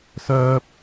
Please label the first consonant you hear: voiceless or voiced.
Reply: voiceless